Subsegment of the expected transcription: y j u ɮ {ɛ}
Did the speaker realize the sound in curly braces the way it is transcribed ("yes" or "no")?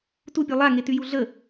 no